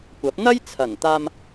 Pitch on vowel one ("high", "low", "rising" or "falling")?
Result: rising